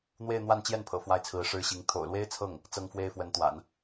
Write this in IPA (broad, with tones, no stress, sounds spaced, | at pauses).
n̪ w e˥˧ ɪ̯ n̪ w a˥˧ n t͡ɕ j ɛ˥˩ n pʰ ɤ̰˨˩ f w a˥˩ ɪ̯ t͡sʰ ɹ̩˧˥ ʂ ɻ̩˥ ɕ i˧˥ ŋ t̪ʰ o̰˨˩ ʊ̯ l w e˥ ɪ̯ t͡sʰ ɤ˥˩ ŋ | t͡s ɤ˥ ŋ f w e˥ ɪ̯ f w ə˧˥ n t̪ w a̰˨˩˦ n